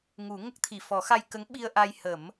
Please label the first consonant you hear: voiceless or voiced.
voiced